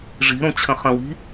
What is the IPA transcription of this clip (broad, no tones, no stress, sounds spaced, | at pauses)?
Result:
ʐ i̤ ɾ õ t͡ɕʰ ə̃ χ ə̃ w i̤